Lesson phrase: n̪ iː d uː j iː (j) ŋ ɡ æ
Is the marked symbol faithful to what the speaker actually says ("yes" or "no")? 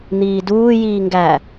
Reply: no